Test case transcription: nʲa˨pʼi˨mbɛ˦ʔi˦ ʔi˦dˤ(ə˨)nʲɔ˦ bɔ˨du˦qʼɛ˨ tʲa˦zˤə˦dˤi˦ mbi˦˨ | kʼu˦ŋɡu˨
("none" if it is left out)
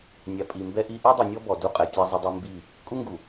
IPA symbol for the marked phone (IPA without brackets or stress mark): ɨ˨